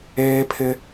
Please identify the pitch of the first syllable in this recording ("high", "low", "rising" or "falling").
high